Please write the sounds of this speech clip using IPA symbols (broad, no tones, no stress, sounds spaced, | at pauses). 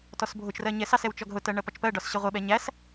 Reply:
t ɔ s bʱ ʊ t͡ʃ r ɜ ɲ ɛ s ɑ s ɛ w t͡ʃ ɔ ɡ ɦ ʊ t ɜ ɳ ɜ p ɒ t͡ʃ p ɜ ɖ ɒ s ɕ ə ʁʷ ɪ ɓ ɛ ɲ æ s